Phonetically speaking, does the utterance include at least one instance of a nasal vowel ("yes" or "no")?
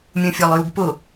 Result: yes